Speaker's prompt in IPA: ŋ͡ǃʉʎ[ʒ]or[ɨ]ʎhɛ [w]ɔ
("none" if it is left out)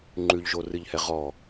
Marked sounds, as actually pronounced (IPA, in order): ʒ, ɨ, ʁ

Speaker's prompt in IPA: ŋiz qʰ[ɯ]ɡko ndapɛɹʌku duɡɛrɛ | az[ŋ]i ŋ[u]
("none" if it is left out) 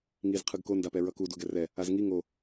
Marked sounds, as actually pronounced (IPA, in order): ɯ, ŋ, o

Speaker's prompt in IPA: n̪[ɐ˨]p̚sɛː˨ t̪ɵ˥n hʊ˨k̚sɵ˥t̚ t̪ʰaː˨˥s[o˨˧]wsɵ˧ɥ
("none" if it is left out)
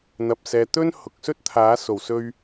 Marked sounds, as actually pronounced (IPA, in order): ɐ˨, o˨˩

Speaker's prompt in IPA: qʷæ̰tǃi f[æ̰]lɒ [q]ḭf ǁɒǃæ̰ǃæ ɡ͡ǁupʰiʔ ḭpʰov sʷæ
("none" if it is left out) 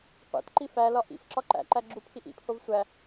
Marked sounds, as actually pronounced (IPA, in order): æ, ʔ

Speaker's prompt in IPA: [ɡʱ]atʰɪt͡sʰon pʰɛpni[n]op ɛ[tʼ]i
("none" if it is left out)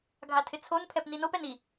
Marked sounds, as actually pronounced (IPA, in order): ɡʱ, n, n

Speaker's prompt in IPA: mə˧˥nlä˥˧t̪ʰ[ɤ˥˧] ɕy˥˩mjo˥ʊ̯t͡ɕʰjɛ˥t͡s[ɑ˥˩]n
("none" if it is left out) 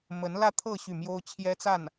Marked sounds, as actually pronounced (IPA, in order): ɤ˥˧, a˥˩

